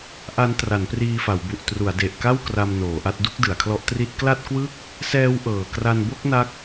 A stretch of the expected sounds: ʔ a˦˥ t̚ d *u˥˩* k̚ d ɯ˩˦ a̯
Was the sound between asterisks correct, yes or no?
yes